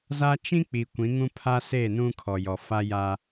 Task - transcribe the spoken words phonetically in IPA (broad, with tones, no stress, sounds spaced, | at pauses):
z a˦ t͡ʃ ĩ˦ k͡p i˨ kʷ ĩ˨˦ ŋ ũ˦ pʰ a˦ s e˦˨ n ũ˦ kʰ ɔ˨ j ɔ˨ f a˦ j a˦